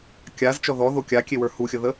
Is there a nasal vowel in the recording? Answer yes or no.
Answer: no